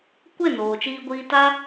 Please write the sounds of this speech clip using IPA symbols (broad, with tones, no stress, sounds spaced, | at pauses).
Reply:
kʷ e˦˨ n oː˨ t͡ʃ iː˧ ɡʷ iː˧ t a˧